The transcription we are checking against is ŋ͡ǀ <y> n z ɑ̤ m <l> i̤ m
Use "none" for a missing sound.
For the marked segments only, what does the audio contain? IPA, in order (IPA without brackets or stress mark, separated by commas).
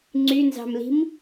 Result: y, l